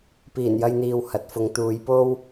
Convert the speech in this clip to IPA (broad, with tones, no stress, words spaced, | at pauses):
piː˨˩njɐ˧jn̪iː˨w hɐ˨˥t̚fʊ˨˧ŋ t̪uː˨˧jpo˥w